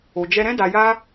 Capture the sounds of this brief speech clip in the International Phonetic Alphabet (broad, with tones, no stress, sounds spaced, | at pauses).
o˨ d͡ʒ ɛ˧ ɾ ɛ̃˦ d a˧ j a˦